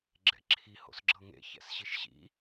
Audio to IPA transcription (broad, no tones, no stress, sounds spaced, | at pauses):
ɡ͡ǁ ɛ̰ ǁʰ i h o̰ s ɡ͡ǁ ɤ ŋ ḛ ç ɛ̰ s ɕ i ʃ ɕ ḭ